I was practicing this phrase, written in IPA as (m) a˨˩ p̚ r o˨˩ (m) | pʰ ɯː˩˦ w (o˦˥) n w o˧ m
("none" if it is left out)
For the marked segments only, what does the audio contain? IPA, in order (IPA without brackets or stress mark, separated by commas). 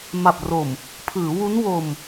m, m, u˦˥